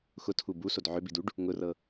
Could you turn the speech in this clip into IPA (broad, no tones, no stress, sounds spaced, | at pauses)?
x ʊ tʰ u b u s o d ʕ ʏ b i d u ɖ | ŋ ʊ r ɤ